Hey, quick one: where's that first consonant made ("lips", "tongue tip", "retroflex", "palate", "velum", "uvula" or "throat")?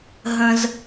throat